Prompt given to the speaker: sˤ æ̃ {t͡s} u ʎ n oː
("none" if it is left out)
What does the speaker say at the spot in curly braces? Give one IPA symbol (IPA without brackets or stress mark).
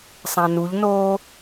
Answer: n